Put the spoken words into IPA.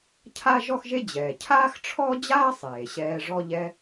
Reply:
cʰ a˥ ʒ ɔ˥ x ʒ e˥ d͡ʑ ɛː˩ cʰ aː˥ x ʈ͡ʂʰ ɔ˥ d͡ʑ aː˥ sˤ eː˩ ɕ ɛː˧ ʐ ɔ˧ ʎ ɛ˧

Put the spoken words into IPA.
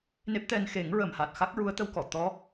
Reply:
n e˦˥ p̚ t̪ ɛ˧ n x e˨˩˦ ŋ ɹ ə˨˩ m h a˨˩ t̚ x a˦˥ k̚ ɹ u˧˥ ə̯ t̪ ə˧ w k ɔ˨˩˨ t̪ ɔ˧˥

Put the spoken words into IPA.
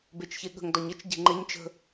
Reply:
b e t͡ʃ ç e ɠ ə̤ ŋ d ɒ ɲ ə t͡ʃ ɟ e̤ ŋ͡ǃ e ɲ t͡ʃ ə̤

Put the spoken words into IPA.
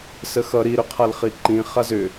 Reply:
s ə x ʌ ɾ i ɾ ʏ qʰ a l χ i ǃ ĩ χ a z ʏ

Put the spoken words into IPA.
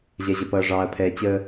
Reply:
ʑ ɛ˨ ʑ ə˨ p ʌː˨ ʐ ɑː˨ ɐ̯ pʰ ɛː˨ t͡ɕ əː˦

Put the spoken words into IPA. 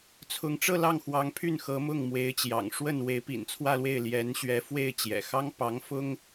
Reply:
t͡sʰ ʊ˧˥ ŋ ʈ͡ʂ ɤ˥˧ l ɑ˥˩ ŋ x w ɑ˧˥ ŋ pʰ y˥˩ n x ɤ˧˥ m ʊ˥˩ ŋ m w e˧˥ ɪ̯ t͡ɕ j ɑ̰˨˩ ŋ ʂ w ə˥˩ n w e˧˥ ɪ̯ p ḭ˨˩ n t͡sʰ w ä˥˧ l w e˥˩ ɪ̯ l j ɛ˧˥ n ɕ ɥ ɛ˧˥ f w e˥˩ ɪ̯ t͡ɕ j ɛ̰˨˩ x ɑ˥ ŋ p ɑ˧˥ ŋ f ʊ˥ ŋ

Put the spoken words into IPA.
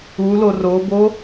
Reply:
u l o r o b o

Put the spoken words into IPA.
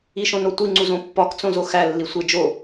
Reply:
i ʃ õ n o tʷ i ŋ͡ǀ u z õ pː ɒ k t͡s õ z o x æ lː i sʷ e d͡ʒ o

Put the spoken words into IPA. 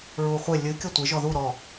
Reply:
ɹ u χʷ ɪ lʲ ɨ kʲ ʌ tʷ ɪ ʒ ɔ ð u ɾ ɔ

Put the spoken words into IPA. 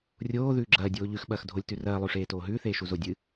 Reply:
rʲ oː ð ʉː ɡ͡ǁ ɐː dʲ oː ʎ ʉ x ɓ ɐː x dʱ o lʲ t ʉ r ɐː lˠ ʉ ʂ eː t oː ɦ ʉː θ eː ʃ u z o dʲ ɨ

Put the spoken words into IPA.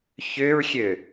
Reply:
ç ʏ ɹ xʲ ø

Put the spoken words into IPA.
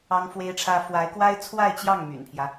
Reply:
ɑ˥ ŋ f w e˥ ɪ̯ ʈ͡ʂʰ ä˥ f w a˧˥ ɪ̯ k w a˥ ɪ̯ t͡sʰ w a˥˧ ɪ̯ t͡ɕ j ɑ˥˩ ŋ m y̰˨˩ n pʰ j ä˦

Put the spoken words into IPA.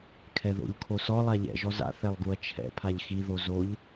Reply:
kʰ ɛ ð o̰ ʎ kʰ o s ɔ lˠ a ʎ ɛ̰ ʒ ɔ z a̰ θ ɛ lˠ ɡ u ɐ̯ t͡ʃʰ ɛ̰ pʰ a ʎ x i ð o z o ʎ

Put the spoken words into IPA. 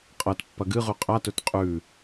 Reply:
qʼ ɐ t pː ɐ ɡ ɨ ʁ ʉ qʼ a t ɵ t qʼ ʉ

